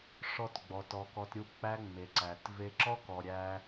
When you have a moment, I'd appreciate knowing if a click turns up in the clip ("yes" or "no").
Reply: yes